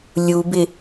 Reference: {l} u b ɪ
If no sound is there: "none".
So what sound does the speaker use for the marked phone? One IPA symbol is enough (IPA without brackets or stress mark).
lʲ